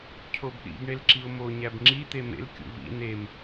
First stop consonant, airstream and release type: aspirated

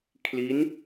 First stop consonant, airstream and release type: aspirated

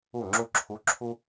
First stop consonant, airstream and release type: click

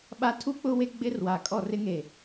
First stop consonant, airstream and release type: implosive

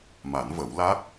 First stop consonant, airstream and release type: plain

